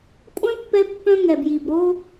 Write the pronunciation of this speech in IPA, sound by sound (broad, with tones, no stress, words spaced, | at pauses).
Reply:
kʷʼœ̃˦ pːɛ˦pːœ̃˦ ŋɛ˨bji˨bɾo˦